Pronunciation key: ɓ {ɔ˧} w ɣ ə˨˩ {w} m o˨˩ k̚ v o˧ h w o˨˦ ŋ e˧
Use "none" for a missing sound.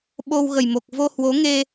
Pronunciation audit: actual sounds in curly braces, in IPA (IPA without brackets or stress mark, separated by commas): o˧, j